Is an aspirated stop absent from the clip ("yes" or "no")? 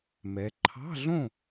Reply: no